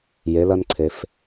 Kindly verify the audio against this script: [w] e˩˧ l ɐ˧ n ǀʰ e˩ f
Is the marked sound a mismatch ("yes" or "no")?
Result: yes